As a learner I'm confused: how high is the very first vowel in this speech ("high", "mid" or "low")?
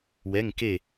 mid